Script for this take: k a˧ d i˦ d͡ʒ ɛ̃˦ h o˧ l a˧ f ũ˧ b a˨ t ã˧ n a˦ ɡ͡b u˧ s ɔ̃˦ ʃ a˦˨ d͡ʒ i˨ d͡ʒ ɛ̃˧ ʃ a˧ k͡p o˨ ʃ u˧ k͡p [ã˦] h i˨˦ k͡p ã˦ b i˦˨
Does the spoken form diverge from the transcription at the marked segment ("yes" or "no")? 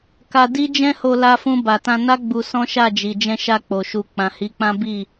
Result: yes